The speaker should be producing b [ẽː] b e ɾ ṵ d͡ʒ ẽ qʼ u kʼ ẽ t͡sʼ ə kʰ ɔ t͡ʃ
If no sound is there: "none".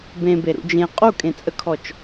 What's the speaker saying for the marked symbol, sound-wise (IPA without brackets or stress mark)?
ẽ